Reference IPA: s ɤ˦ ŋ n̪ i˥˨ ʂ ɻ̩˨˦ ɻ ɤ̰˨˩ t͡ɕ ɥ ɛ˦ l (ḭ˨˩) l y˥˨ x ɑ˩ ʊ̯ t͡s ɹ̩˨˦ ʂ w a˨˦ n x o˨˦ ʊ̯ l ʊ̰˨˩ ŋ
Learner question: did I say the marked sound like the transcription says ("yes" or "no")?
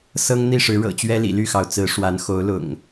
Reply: yes